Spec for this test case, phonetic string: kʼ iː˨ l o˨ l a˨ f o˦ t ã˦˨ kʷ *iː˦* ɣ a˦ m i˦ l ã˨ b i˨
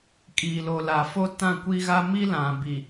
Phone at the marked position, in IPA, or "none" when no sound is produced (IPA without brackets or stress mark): i˦